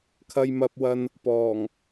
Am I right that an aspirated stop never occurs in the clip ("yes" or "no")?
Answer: no